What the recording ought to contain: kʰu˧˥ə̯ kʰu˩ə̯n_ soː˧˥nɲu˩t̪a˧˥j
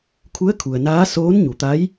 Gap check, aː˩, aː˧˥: aː˧˥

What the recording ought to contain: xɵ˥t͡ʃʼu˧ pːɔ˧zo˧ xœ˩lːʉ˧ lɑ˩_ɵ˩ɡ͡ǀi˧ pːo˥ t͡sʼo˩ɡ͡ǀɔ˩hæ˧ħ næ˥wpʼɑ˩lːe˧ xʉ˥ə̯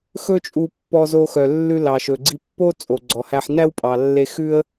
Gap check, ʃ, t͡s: ʃ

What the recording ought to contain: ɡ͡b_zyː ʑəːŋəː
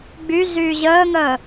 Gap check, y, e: y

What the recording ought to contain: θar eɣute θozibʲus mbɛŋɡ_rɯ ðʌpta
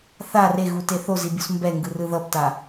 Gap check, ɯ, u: ɯ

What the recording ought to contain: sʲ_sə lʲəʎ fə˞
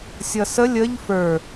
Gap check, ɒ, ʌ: ʌ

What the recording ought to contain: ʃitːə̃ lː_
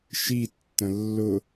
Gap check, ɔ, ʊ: ʊ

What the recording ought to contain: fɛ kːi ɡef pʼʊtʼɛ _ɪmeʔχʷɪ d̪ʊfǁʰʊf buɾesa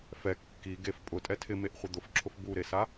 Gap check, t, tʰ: tʰ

